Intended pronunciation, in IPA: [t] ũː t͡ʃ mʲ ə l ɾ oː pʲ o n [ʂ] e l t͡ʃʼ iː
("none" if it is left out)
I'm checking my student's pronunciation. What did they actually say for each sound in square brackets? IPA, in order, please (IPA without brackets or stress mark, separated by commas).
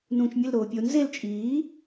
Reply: n, z